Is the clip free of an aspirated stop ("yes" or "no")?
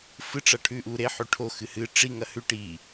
no